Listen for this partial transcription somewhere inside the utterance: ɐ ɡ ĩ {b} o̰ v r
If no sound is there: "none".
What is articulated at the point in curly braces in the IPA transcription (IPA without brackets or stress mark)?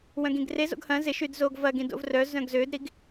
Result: d